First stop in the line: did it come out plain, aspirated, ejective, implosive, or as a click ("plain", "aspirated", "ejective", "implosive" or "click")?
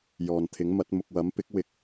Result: aspirated